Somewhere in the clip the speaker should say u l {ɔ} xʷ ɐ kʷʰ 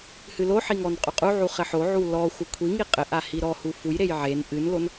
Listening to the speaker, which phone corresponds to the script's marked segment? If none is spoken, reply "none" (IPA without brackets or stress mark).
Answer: ɔ